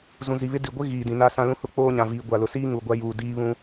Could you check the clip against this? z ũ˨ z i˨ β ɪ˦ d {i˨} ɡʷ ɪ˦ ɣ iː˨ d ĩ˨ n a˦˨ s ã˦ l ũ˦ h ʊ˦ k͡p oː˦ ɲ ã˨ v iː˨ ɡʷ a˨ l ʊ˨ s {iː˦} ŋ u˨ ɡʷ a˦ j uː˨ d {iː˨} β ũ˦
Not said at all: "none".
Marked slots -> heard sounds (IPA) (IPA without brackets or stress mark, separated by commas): i˨, iː˦, iː˦